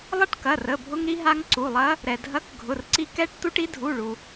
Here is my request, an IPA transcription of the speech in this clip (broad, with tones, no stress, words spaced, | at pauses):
lˠɐ˦˥ʈkɐ˩˧˩ rə˩˧˩bʱʊ˧ŋ ɾi˧ɦa˧ŋ ǀu˩˧˩lˠɐ˦˥ | ɾɛ˩dʱɐ˨˥k ɡʱʊ˩˧˩rǀi˧ kɛ˦˥ʈ tu˦˥ʈi˦˥ dʱu˩˧˩ɭu˩